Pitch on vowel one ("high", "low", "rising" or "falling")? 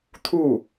falling